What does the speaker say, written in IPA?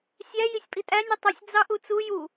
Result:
sʲæ jisʲpʼitʼæ nʲɯtˤusʲ d͡zɑʔut͡su ju

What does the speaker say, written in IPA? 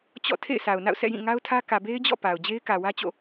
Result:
t͡ɕɔ̰˦˨ tʰḛ˦˨ɪ̯sa˨ʊ̯na̰˦˨ʊ̯ sʰɛ̰˦˨jĩ˦˨ŋa˦ʊ̯tʰä˦ kä˨be˦ɪ̯d͡ʑɔ̰˦˨ pa˨ʊ̯ d͡ʑe˦ɪ̯kä˨wä˦ t͡ɕo̰˦˨

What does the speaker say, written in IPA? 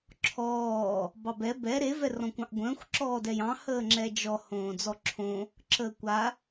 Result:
ǁʰɔː | bɑbɛ bɛ ɾe vɛrɔ̃kʷɑ̃ʔɡʷə̃ːxʷ ǁɔːdɛjɑ̃ həːŋ͡ǁɛd͡ʒɔ hõːd͡zɔǁʰõ | ǁəːkʷa

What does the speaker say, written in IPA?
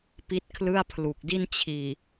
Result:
pi˦˥t̚kʰlɯ˥˩a̯pʰlu˨˩k̚di˥˩n t͡ɕʰiː˨˩

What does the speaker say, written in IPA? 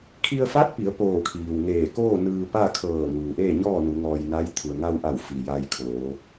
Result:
kʰi˧ə̯fa˧˥t̚pi˩˧ə̯ poː˧˩kʰiː˩wŋeː˧˩koː˥˨ nɯː˧pa˥˨ kʰɤː˧˩ ŋuː˩ʔeː˥˨ ɲɔː˥˨nu˩˧ ŋɔː˧jna˧˥j t̪ʰu˩ə̯ŋa˧wʔa˧˩w fi˩ ja˧jkʰoː˩˧

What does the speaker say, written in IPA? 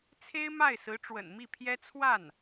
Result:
t͡sʰe˥ɪ̯ma˥˩ɪ̯sɹ̩˧˥ ʈ͡ʂwə̰˨˩nmi˥˩pʰjɛ˥ t͡sʰwa˥˩n

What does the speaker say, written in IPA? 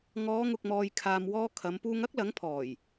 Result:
ŋɔː˨˧ŋʊ˨k̚mɔː˨j kʰaː˨mwɔː˧ kʰɐ˨˧m puː˧ŋɐ˥k̚lɐ˨˥ŋpʰɔː˨˩j

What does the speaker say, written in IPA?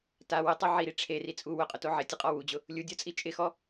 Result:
ta wʊtˤo ʕiɾi ʈ͡ʂʰeri t͡sʼu wʊqʼʊto ʕɪtʲʊqʼɔ wud͡ʑʊ | lʲudʲɔt͡sʼi t͡ʃʼɪxɔ

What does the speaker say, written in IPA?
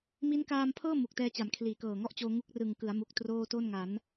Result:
mi˦˥nkaː˧mpʰɤː˥˩ mu˨˩k̚tɛː˧t͡ɕa˩˦m kʰliː˩˦kɤː˨˩ŋɔ˦˥ʔt͡ɕoː˧ ŋu˦˥k̚ rɯ˨˩ŋkɯ˩˦a̯mu˨˩k̚ troː˥˩ to˥˩nŋa˩˦n

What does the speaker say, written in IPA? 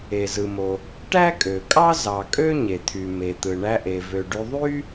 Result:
e˩zɯ˩mo˩ | ʈæ˥kʼø˩kʼɑ˥ zɑ˩kʼø˥ ɲe˩t̪ʰy˩ me˩t̪ɯ˩ ɳæ˧ʔe˩ vø˩ɖy˧ ðˤy˥

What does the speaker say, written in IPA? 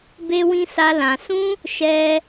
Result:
be˦wĩ˦sa˦ lã˧sũ˦ | ʃɛ˦

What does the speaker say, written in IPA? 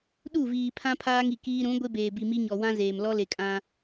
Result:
ɗu˦˨viː˨pʰã˦ pʰaː˦ŋi˨kiː˦ ɾũ˨˦ ɡʷe˦beː˨bi˨ mi˦ɲɔ˨ wã˦ zeː˨m lɔ˦le˨kʼã˦

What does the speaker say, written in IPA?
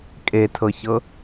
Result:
kʼetʰɤçɤ

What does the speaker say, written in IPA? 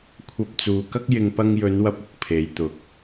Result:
kʷʰɐ˧p̚t͡suː˨kɐ˥k̚jɪ˧ŋ pɐ˧ŋjɵ˨˧n wɐ˧p̚ʊ˨k̚ pʰe˨˧jt̪ʊ˨k̚

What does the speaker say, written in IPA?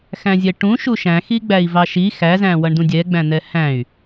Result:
xæ̃zʲɛʈũ ʃuʃæ̃xi ɡ͡bæi̯vɑʃi xæzæ̃ wʌɳdũdʲɛ ɡ͡bæ̃n̪ɛhæ̃y̯

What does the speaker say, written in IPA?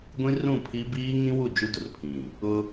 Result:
ɡʷĩ˦rũ˦˨pʰi˦ biː˦ŋĩ˦wu˦˨ d͡ʒu˦dʊ˨rpʰĩ˨ | ʊ˦

